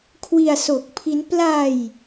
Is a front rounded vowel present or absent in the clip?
absent